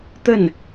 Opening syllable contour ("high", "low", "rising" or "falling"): falling